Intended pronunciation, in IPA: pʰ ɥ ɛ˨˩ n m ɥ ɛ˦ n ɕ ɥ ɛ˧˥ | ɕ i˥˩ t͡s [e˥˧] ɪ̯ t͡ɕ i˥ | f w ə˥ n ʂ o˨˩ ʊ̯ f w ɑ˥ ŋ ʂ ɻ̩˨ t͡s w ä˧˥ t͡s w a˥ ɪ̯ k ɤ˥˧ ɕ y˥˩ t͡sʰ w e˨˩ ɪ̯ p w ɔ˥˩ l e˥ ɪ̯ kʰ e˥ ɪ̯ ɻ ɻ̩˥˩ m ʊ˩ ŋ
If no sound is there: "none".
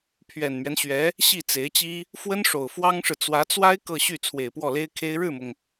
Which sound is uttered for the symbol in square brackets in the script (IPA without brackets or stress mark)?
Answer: e˧˥